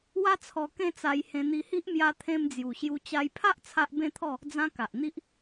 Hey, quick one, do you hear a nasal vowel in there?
yes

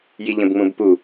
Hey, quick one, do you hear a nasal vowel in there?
yes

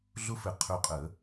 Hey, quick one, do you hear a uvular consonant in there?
yes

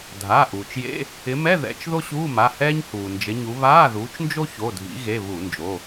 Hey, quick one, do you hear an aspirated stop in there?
no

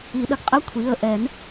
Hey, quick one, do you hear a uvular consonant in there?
yes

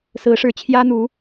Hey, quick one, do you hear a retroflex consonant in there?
yes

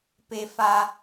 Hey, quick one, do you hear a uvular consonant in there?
no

